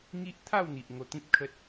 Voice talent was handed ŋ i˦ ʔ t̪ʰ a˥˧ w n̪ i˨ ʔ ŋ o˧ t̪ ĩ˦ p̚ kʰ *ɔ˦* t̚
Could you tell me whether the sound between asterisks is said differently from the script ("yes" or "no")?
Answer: yes